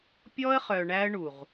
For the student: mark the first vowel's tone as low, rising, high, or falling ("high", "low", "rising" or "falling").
high